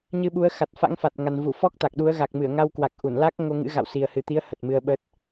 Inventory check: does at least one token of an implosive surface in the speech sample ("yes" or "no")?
yes